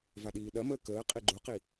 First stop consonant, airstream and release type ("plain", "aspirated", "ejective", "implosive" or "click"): implosive